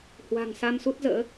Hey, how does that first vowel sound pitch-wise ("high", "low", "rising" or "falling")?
low